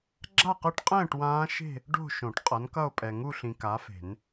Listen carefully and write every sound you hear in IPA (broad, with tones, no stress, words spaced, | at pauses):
ɡ͡ǁa˥˧qɯ˦˥ʈqʼɛ̃ː˥˧ʈ wãː˦˥ʃe̤˥˧ | ɖo̤˥˧ ʃõ˨˩˦ʈqʼʌ˨˥nkʌ˥˧o̯pʼɛ˨ ŋu˥˧ɬĩ˨ ka˨˥fe̤˨˩˦n